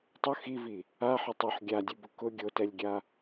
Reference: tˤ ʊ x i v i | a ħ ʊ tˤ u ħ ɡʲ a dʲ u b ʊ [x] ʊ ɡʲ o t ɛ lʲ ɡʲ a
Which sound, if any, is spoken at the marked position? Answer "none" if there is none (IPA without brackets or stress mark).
k